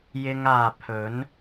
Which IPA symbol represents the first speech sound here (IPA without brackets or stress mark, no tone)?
j